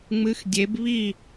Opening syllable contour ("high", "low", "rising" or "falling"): rising